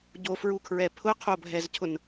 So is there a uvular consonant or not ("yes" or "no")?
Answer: yes